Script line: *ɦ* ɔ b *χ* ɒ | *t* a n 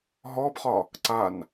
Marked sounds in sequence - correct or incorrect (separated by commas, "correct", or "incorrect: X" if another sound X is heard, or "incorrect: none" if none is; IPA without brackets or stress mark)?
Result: correct, correct, incorrect: ǀ